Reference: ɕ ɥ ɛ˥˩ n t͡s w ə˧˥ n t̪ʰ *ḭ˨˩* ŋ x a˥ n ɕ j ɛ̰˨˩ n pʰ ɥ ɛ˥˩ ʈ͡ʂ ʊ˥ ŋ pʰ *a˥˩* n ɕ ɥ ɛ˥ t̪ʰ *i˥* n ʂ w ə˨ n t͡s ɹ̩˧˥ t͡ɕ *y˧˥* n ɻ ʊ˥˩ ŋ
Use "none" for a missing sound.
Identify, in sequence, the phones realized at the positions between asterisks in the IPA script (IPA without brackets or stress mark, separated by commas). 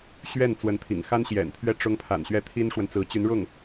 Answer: ḭ˨˩, a̰˨˩, i˥, y˧˥